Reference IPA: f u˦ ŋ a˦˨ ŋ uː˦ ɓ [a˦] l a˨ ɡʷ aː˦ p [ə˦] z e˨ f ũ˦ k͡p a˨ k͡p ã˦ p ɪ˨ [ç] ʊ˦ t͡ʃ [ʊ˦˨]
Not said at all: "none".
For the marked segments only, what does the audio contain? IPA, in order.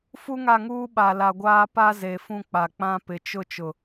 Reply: a˨, a˦, t͡ʃ, ʊ˨

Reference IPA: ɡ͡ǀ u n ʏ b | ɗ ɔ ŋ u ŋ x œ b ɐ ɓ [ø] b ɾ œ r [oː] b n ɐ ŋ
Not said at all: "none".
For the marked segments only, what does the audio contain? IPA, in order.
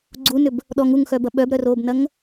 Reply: œ, oː

